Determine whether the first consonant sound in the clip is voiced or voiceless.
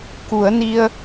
voiceless